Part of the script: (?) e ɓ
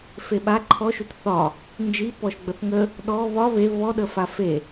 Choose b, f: f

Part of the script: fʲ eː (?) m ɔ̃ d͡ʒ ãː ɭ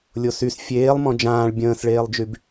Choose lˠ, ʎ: lˠ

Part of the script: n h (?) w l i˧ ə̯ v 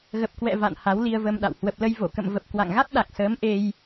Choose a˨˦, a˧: a˨˦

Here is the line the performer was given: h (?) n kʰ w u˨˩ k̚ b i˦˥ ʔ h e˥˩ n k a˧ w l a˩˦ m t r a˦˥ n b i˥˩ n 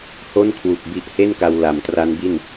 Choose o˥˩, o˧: o˥˩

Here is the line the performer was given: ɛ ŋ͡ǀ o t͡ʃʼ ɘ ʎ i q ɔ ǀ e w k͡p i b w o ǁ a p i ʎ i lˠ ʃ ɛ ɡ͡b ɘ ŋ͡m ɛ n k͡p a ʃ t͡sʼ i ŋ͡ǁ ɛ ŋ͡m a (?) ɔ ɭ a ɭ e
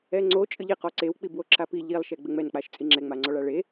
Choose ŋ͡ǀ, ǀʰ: ŋ͡ǀ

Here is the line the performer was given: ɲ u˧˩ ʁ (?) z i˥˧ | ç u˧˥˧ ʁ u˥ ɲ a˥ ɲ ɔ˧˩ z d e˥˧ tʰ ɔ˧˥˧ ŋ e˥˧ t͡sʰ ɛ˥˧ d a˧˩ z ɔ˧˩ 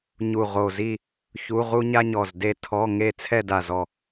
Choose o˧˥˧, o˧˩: o˧˩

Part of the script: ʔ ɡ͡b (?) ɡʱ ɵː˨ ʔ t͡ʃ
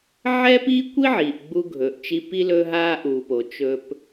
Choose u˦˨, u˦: u˦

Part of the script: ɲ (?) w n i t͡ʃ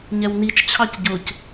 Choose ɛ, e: ɛ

